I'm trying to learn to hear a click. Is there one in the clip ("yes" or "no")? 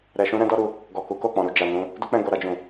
no